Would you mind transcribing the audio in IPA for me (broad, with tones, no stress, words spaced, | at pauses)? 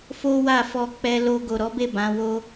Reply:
fo˦wa˦˨fɔ˧ k͡pɛ˧lo˧ ɡo˨ɾɔ˨˦be˦˨ bã˨˦wo˦